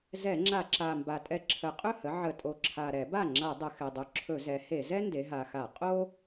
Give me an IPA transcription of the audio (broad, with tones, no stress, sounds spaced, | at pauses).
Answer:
z ɛ˧˩˧ ŋ͡ǁ a˧˩˧ ǁ a˨˩ m b a˨˩ tʼ ɛ˧˩˧ ǁʰ ə˨˩ qʼ ɵ˥˩ h ə˩˥ ʕ ə˧˩˧ tʼ o˨˩ ǁʰ a˨˩ ɾ ɛ˧˩˧ b a˥˩ ŋ͡ǁ a˧˩˧ dˤ ə˨˩ x ɛ˨˩ dˤ ɵ˨˩ ǁʰ ɵ˧˩˧ z ɛ˩˥ h e˧˩˧ z ɛ˥ n d e˩˧ ɦ a˨˩ x a˧˩˧ qʼ o˥